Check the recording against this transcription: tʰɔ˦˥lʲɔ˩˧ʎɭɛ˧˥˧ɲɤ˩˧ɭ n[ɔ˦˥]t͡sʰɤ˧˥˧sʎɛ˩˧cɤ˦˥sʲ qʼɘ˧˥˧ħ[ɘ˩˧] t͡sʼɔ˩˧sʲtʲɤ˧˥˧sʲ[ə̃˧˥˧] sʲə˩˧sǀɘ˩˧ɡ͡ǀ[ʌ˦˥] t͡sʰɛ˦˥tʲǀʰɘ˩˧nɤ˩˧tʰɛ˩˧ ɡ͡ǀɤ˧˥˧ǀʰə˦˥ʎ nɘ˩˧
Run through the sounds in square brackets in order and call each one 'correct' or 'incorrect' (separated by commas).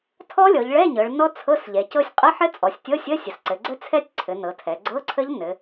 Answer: correct, incorrect, incorrect, incorrect